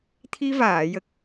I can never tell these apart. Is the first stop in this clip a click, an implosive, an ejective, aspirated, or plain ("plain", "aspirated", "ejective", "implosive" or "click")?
aspirated